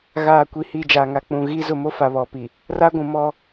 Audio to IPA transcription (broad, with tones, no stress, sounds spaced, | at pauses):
ɣ aː˨ kʷ i˨ h i˨ d͡ʒ a˨ ŋ a˨ k͡p ũ˨ ɣ i˦ z ʊ˦˨ m o˦ f a˨ β ɔ˨ p i˨ | r a˦ ɡʷ ũ˨ m ɔ˦